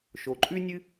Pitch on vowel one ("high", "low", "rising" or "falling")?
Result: low